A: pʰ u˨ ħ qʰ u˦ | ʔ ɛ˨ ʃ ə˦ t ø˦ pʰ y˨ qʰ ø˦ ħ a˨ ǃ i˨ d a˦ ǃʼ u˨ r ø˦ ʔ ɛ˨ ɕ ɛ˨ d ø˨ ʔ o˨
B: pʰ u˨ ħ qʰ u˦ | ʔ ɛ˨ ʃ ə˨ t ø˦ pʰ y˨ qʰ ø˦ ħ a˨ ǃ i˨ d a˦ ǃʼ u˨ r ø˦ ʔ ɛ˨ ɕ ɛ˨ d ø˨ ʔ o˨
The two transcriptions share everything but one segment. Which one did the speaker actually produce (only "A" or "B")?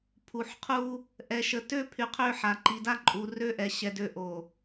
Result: B